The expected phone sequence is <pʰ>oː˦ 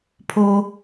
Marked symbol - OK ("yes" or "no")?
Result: yes